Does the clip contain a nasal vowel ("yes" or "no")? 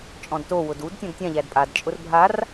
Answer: yes